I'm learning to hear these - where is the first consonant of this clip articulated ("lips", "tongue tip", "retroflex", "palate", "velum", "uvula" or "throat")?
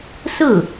tongue tip